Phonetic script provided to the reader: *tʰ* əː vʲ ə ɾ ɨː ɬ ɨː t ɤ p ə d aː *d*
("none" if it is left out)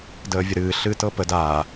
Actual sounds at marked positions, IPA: d, none

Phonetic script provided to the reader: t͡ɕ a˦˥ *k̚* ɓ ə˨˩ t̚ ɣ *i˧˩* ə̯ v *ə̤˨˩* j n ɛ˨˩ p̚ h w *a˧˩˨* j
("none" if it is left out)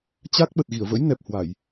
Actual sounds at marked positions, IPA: k̚, i˧˩, ə̰˧˥, a˧˩˨

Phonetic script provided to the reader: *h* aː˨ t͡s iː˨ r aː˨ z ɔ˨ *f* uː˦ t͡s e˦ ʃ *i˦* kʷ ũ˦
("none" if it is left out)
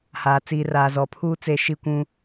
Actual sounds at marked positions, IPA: h, pʰ, i˦

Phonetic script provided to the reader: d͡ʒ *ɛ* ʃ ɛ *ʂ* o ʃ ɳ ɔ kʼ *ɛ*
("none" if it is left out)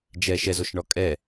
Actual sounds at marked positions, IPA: ɛ, z, ɛ

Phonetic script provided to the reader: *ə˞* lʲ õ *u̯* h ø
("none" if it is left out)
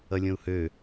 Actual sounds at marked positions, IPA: ʌ, u̯

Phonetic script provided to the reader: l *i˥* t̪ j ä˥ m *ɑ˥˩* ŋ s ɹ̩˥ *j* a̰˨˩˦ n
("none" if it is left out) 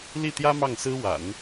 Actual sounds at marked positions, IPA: i˥˩, ɑ˥˩, w

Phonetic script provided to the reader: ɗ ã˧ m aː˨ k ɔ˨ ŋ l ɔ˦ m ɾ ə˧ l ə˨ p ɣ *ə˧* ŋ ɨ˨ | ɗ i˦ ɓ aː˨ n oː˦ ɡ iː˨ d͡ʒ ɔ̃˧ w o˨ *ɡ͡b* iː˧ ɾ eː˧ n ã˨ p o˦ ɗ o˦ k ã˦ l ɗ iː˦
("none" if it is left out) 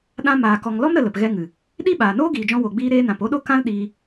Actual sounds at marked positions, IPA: ɛ˧, ɡ͡b

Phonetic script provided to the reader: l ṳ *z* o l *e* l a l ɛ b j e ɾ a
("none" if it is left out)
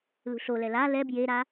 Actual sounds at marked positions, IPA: ɬ, ɛ

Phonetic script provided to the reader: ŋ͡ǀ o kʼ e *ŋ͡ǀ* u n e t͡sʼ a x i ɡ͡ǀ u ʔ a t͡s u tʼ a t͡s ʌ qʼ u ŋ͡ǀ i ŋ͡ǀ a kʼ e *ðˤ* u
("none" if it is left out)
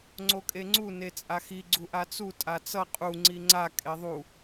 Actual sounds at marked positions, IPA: ŋ͡ǀ, ðˤ

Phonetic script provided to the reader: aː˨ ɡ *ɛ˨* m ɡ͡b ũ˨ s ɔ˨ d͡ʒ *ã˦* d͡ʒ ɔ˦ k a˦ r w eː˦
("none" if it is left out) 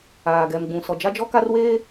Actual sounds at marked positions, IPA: ɛ˨, a˦

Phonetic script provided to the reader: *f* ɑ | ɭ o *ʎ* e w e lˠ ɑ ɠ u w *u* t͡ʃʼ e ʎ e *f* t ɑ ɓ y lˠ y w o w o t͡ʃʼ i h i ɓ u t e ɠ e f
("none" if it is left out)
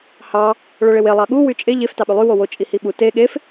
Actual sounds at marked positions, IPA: h, ɭ, y, f

